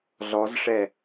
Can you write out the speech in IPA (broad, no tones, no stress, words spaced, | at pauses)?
ɮɔzʂɛ